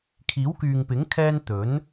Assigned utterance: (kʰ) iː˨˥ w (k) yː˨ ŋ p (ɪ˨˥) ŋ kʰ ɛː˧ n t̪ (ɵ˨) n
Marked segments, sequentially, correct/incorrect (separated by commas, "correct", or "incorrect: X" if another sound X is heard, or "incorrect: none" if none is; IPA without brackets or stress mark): correct, correct, correct, incorrect: ɵ˨˥